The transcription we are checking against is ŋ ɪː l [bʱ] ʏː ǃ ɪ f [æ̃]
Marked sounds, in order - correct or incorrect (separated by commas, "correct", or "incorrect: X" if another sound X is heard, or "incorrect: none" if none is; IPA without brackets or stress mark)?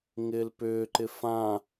incorrect: p, incorrect: ã